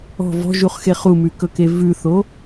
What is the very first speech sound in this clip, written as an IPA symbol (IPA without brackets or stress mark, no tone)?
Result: ɔ̤